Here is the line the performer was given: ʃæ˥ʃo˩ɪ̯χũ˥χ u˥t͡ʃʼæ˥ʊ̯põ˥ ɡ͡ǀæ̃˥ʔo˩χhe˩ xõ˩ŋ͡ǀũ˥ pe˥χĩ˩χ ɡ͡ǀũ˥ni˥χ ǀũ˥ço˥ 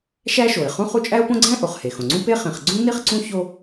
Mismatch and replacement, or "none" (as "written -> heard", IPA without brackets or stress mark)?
none